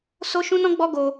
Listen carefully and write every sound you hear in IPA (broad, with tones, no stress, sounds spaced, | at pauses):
s o˦ ʃ ũ˦ n ɔ̃˦ ɡ͡b ɔ˦ ɡ o˦